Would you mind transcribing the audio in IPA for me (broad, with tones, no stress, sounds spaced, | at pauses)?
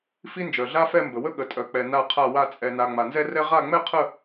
f i˥ n d͡ʒ œ˨ ɮ a˥ f ɛ˥˧ m b ə˨ w ə˥ ɠ ə˨ tʼ œ˨ k͡p ɛ˨ n a˥˧ qʰ a˥˧ w a˥˧ t͡sʼ ɛ˨ n a˨ ŋ͡m a˨ n z ɛ˥ r ɛ˥ ʁ a˥˧ ŋ͡m ɛ˥ qʰ ə˥˧